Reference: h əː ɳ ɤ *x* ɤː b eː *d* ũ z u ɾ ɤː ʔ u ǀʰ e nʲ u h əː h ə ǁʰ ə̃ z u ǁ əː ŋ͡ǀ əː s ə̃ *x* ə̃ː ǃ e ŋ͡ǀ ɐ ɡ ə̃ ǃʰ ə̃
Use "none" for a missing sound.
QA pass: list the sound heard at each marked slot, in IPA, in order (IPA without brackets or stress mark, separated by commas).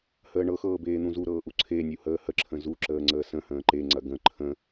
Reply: x, n̪, h